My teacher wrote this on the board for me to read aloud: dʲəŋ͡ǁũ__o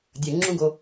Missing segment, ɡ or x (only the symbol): ɡ